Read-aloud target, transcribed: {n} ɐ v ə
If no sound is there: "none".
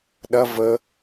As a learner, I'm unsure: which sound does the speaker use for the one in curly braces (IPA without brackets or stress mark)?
ɗ